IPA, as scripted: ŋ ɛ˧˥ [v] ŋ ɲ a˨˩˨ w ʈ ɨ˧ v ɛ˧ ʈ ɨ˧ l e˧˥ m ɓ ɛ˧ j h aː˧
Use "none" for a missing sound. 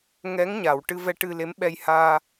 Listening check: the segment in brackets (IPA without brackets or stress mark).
none